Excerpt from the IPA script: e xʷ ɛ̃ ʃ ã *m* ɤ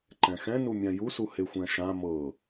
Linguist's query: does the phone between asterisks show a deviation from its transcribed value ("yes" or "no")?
no